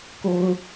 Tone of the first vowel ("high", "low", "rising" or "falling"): high